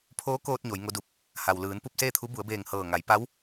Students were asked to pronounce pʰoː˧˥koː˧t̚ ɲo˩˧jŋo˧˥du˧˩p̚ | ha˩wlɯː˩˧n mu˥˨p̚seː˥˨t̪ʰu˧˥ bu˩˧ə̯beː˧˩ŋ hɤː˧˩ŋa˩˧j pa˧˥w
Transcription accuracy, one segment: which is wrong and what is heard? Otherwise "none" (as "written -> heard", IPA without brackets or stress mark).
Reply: m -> p